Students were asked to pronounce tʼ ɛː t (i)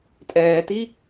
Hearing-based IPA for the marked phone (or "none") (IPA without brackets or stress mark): i